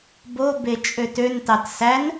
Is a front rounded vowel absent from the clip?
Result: no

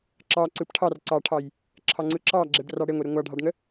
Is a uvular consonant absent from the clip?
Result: yes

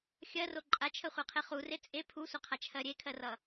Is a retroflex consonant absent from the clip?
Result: yes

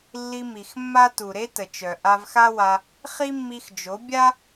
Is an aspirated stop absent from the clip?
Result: yes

